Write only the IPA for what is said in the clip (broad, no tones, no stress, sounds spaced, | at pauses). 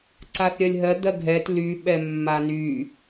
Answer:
ǀ a θ ɾʲ ɜ lʲ ɦ ɜ d̪ ɜ ɡʱ ɛ t l y ɓ ɛ mː a n y